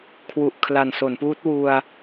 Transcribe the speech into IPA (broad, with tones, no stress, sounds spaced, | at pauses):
kʰ w u˨˩ ʔ kʰ l a˨˩ n s o˩˦ n p uː˦˥ t̚ w u˧ a̯